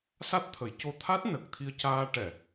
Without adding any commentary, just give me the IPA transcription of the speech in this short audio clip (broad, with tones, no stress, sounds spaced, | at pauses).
s a˦˥ t̚ t̪ʰ ə˨˩˦ j c o˧˥ t̪ʰ a˦˥ t̚ n ə˨˩ k̚ t̪ʰ i˧ ə̯ c aː˧ ʈ ɛ˨˩˨